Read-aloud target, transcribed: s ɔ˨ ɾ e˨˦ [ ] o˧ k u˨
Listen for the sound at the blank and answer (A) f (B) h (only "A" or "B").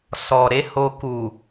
B